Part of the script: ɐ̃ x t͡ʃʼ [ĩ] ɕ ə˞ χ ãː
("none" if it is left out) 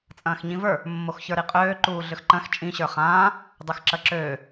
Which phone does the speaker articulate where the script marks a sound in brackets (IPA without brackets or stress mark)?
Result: ĩ